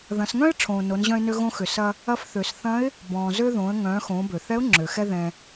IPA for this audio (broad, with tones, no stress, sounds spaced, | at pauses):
ð ɐ̃˩˧ s ŋ œ̃˥ ɪ̯ ʈ͡ʂʰ õː˩ n o˩˧ n ʑ œ̃˧ ɪ̯ n ø˧ ɣ õ˧ x ʏ˩ s ɐ˧ | ɐ˧ f θ ø˩ s θ ɐ̃˧˥ ɪ̯ | b ɔ̃ː˩ z ø˧ ð õː˩˧ ə̯ ŋ œ̃ː˩˧ x õː˩˧ b ø˩ θ ɛ˧˥ ʊ̯ ŋ͡ǁ ø˩ x ɛ˧ ð ɛ̃˩